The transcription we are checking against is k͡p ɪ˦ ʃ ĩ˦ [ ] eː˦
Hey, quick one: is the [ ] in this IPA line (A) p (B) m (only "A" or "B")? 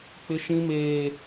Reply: B